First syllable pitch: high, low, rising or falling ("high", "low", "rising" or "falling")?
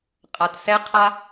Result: low